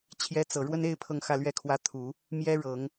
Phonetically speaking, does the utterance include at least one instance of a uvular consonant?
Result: no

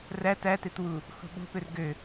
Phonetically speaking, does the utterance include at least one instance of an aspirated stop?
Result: no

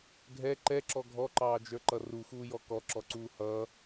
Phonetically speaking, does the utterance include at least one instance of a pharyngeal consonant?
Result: no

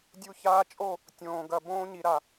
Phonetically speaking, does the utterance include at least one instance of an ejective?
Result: yes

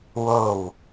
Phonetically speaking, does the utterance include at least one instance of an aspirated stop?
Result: no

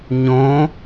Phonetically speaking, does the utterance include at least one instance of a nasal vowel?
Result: yes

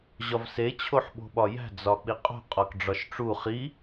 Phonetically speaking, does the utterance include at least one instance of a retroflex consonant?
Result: yes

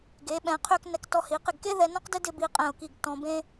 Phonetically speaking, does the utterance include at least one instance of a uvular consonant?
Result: yes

